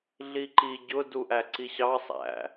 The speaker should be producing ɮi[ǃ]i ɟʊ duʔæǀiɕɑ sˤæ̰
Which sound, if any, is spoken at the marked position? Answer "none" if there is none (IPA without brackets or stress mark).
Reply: ǃ